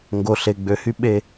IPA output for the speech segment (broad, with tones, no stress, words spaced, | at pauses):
ŋɡo˨ɬe˨ɡ͡bø˨hy˧ ɓe˨